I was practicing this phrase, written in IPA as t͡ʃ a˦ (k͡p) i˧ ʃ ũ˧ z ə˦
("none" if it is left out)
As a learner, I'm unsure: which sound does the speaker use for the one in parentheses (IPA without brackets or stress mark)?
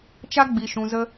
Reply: ɡ͡b